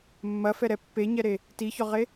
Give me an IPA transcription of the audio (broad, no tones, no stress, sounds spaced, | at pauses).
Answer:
mː ɐ f ɛ ɾ ɛ pː e ɲ ɛ ɾ e | t i ç ɔ ʁ e